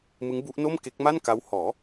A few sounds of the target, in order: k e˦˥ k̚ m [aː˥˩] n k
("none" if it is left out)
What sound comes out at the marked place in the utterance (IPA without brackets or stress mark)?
a˥˩